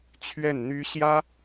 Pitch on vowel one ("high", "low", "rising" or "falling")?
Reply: falling